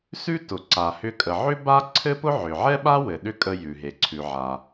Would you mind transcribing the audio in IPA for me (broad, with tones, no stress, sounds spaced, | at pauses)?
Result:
s ʉ˥ t ʊ˩ ǀ a˩ h ʏ˧ kʼ ə˩ ʕ ʏ˥ b a˥ ǀʰ ɘ˥ p ʊ˥ ʕ ʏ˩ ʕ ɛ˥ ɓ a˥ w ɘ˩ ɗ ʏ˧ kʼ ə˧ j ʉ˩ ɦ e˩ ǀʰ ʉ˩ ʕ a˩